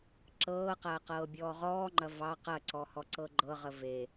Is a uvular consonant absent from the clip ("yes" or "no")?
no